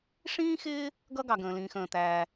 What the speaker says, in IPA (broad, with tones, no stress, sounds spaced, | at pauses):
ʂ ĩː˥ x ɪː˥ | ɡ ʌ˥ ɡ ɑ˩ ɡ ə̃ː˩ l ĩː˩ x ə̃ː˩ t̪ æː˩